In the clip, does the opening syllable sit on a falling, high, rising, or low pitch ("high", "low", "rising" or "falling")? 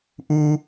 high